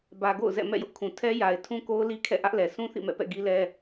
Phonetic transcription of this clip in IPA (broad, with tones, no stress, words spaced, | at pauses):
bä˨ ɡo̰˦˨ʊ̯zɛ̰˦˨ mɛ̰˦˨jʊ˦ʔkʰũ˨ tʰɛ˦ja˨ɪ̯ tʰũ˦ko˦ʊ̯li˦ kʰɛ̰˦˨ʔä˦ʔlɛ˨ sũ˦θḭ˦˨mɛ̰˦˨pɛ̰˦˨ ɡi˦lɛ˦